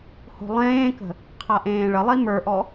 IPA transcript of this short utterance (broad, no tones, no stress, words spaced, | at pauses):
ho̤lˠẽːkə̤ | qʰaʔẽːɭəlˠi mə˞ʔɔ